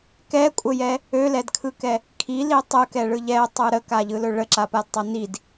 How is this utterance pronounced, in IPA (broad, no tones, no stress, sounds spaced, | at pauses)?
k ɛ kʷʼ ə j ɛ | ø l ɛ d kʰ ɯ k ɛ | kʰ i l i tˤ ɯ k ɛ ɭ ɯ ʎ ɛ tˤ ɯ ɾ ə k a ʎ ɯ l ɵ ɭ ə ǁ a p a d tˤ ɵ n i d